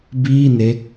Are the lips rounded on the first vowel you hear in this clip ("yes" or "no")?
no